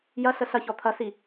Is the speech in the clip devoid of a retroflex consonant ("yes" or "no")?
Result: yes